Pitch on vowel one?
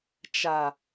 low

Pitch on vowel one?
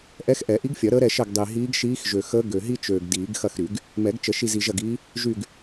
rising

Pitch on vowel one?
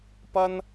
high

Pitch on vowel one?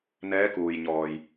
rising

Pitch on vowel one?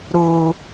low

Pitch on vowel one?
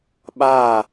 falling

